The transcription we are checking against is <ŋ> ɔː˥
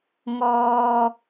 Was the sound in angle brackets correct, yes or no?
yes